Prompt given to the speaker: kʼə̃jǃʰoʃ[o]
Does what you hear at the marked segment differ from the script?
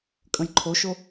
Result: no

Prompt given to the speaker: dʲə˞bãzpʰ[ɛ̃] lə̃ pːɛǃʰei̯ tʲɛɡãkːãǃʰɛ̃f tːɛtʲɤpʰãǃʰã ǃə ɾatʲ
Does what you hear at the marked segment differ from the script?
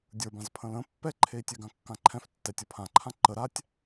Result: yes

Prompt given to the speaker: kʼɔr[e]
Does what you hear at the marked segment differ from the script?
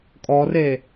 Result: no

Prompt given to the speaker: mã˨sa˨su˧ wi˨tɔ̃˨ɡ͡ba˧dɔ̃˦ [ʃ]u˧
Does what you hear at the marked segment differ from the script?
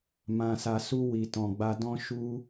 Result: no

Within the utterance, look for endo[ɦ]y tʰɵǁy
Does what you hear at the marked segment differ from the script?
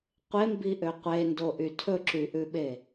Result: yes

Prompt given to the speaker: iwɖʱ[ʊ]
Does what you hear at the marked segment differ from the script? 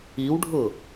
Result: no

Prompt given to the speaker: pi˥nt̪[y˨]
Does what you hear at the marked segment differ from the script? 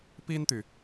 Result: no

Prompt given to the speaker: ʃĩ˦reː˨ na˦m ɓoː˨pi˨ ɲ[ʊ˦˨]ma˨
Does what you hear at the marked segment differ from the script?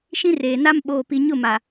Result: no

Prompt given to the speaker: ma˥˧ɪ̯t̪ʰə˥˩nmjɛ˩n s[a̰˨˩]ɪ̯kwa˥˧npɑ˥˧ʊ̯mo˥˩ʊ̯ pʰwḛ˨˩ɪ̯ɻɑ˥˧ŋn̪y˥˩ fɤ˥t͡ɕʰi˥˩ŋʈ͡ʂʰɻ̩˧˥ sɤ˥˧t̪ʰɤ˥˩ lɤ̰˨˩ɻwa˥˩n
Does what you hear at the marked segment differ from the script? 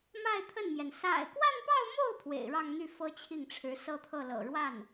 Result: no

